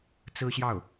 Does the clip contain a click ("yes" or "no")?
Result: no